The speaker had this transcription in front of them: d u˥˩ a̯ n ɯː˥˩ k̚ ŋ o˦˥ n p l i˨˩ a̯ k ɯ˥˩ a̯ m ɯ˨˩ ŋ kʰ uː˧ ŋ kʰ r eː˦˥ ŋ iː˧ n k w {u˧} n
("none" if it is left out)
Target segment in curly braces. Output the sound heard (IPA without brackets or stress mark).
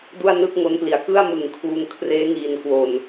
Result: o˧